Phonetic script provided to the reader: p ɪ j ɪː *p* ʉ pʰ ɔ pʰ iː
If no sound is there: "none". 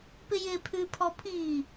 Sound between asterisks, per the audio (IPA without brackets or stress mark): pʰ